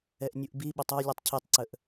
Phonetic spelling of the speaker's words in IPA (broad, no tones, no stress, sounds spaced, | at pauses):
ɛ ʔ nʲ u ʔ b i ɓ ə tˤ ɔ lʲ u tˤ cʰ i tˤ ǀ ə ʔ